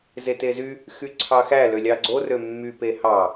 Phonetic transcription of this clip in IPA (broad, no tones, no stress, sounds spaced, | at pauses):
z e t e z y | x y ǀʰ ɑ x æ l ø lʲ ɑ ɡ͡ǀ o r ø mː y p e h ɑ